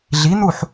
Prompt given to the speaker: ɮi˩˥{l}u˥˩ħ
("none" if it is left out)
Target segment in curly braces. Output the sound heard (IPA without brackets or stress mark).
n̪